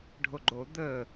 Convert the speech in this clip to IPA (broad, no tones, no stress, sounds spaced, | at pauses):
ɖʱ o ɡ͡ǃ o d̪ ə